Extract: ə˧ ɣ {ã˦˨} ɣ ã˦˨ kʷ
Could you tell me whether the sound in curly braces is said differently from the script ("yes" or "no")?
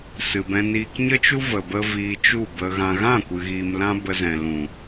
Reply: yes